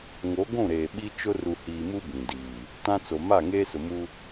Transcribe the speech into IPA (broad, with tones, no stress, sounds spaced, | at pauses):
ŋ o˨˦ ɡʷ ũ˦˨ ɾ eː˨ ɓ i˦ t͡ʃ ʊ˦ r u˨ h iː˨ m u˦ b ĩ˨ d iː˨ | t ã˦ t͡s o˨ m a˦˨ ŋ eː˦ s ʊ˨ m u˦